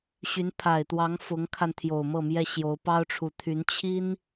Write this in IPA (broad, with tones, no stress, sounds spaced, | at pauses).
ɕ y˧˥ n pʰ a˨˩ ɪ̯ t̪ w ɑ˧˥ ŋ f ʊ˧˥ ŋ kʰ a˧ n t̪ʰ j o˨˩ ʊ̯ m ɤ˥˩ m j ɛ˥ ɕ j o˧˥ ʊ̯ p ɑ˥ ʊ̯ ʈ͡ʂʰ u˨˩ t̪ʰ y˧˥ n t͡ɕʰ i˥ n